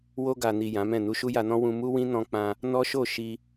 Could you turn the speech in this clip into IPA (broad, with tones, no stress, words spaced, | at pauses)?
wo˧ɡa˨ni˨ jã˨˦mɛ̃˦˨ nu˧ʃu˦ja˧nɔ̃˦ wũ˧mu˦wĩ˦ nɔ̃˧k͡pã˧ | nɔ˦ʃo˦˨ʃi˧